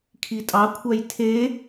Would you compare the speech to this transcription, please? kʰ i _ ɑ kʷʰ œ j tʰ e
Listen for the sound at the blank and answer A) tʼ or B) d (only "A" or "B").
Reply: A